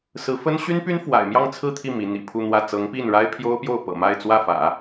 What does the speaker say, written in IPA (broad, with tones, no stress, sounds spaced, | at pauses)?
s ɹ̩˧˥ f ə˥ n ɕ y˥ n p y˥ n f w a̰˨˩ ɪ̯ m j ɑ˥˧ ŋ t͡sʰ ɹ̩˥˧ t̪ʰ i˥˩ m i˧˥ n̪ ḭ˨˩ pʰ u˥˧ n̪ w ä˥˩ t͡s ɤ˧˥ ŋ p i˥˩ n ɻ a˥ ɪ̯ pʰ j o˥ ʊ̯ p j o˥˩ ʊ̯ p ɤ̰˨˩ m a˥˧ ɪ̯ t͡s w ä˥˩ f ä̰˨˩˦